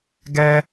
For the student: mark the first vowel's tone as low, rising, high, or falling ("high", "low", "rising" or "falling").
high